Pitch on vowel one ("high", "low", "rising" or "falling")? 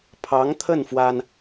rising